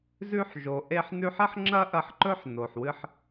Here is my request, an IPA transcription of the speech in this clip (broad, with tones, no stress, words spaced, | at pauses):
zʉ˧ħʒo˩ ʔe˧ħ nʉ˧ħɐ˥ħŋ͡ǁɐ˥ ʔɐ˧ħǃɵ˥ħ no˩ħwɨ˧ħ